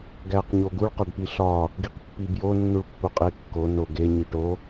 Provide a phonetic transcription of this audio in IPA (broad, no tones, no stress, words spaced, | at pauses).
ɡæq ɲoɡuɭ qɒɖpiɬɒ | ɡiqpːibjo nːuɭpːuqʼe kːo no ɡe ɲiʈo